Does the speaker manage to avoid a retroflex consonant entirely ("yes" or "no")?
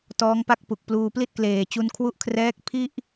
yes